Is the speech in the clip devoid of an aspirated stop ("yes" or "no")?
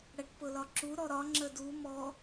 yes